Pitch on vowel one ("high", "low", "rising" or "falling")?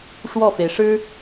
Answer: falling